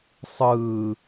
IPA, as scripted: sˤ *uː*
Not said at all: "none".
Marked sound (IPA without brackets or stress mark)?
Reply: ɯː